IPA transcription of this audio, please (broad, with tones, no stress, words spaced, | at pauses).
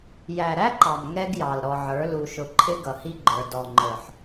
jæ˨ɾæ˦ǃɑ˨m ŋɛ˦ɡjɑ˨l ɾɔ˨ʕə˞˨˦ lu˨ʃʊ˨ǃʰɪ˦ ɡʌ˨hi˦ɡ͡ǃə˞˨ dɔ˨ŋ͡ǃə˞˨ħ